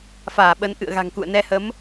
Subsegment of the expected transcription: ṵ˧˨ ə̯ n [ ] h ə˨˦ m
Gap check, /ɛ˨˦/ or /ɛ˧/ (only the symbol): ɛ˧